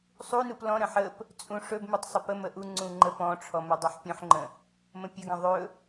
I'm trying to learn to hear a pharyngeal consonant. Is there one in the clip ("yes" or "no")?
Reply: yes